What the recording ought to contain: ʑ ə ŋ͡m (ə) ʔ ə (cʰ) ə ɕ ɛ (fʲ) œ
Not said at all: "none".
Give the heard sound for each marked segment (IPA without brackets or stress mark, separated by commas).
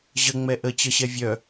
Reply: ɛ, t͡ɕ, vʲ